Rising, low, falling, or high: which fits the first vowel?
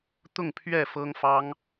falling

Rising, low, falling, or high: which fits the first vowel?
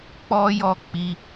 high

